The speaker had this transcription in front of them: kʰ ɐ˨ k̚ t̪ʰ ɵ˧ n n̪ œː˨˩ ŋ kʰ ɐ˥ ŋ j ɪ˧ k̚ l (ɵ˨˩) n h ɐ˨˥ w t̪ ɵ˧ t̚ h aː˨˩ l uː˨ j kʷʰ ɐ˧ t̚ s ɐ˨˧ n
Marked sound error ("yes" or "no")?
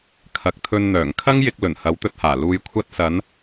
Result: no